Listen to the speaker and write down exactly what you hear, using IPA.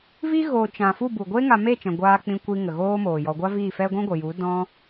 v i˦ ɣ oː˧ t͡ʃ ã˨ f u˦˨ b u˨ ɡʷ e˦ ŋ a˧ m e˦˨ t͡ʃ ɛ̃˨ ɡʷ aː˧ k͡p ĩ˧ kʷ i˧ ŋ ə˨ ɣ oː˦ m oː˨ j ɔ˧ ɡʷ a˦ v iː˦˨ f ɛ˦ ɡʷ ɛ̃˦ ɡʷ ə˨ j u˨˦ d ɔ̃˦

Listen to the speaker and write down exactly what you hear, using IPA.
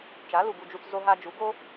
t͡ʃ a˨˦ l u˨ ɡ u˧ d͡ʒ u˧ t͡s z o˧ ɦ a˧ d͡ʒ u˨˦ ɡ o˦

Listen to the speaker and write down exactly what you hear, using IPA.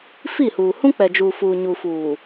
f i˦˨ h uː˨ h ũ˦ k͡p ɛ˨ d͡ʒ uː˨ f uː˨ ɲ u˨ f uː˨

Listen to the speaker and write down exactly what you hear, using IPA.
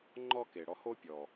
ŋ͡ǃ ɔ˦ k e˨ ɽ ɔ˧ h o˦ pʲ ɔ˨

